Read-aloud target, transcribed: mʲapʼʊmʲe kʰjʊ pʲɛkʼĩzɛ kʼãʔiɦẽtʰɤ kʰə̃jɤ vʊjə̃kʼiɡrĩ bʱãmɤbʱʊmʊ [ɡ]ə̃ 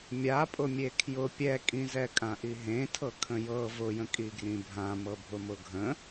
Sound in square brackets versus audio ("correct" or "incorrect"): incorrect